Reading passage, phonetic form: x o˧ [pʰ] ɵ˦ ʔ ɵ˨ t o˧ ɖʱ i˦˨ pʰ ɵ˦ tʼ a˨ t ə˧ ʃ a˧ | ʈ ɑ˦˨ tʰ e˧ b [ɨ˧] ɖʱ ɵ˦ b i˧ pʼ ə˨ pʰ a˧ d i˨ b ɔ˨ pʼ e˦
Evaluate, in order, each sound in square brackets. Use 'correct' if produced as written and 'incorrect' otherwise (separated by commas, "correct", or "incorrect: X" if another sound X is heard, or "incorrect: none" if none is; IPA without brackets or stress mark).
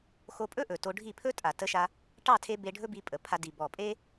incorrect: pʼ, incorrect: e˧